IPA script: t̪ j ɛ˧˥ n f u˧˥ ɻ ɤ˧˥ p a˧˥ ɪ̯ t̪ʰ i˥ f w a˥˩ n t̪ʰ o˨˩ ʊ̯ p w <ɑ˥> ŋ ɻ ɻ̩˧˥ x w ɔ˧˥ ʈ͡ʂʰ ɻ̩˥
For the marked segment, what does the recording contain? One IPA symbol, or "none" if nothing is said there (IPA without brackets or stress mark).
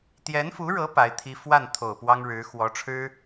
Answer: ɑ˥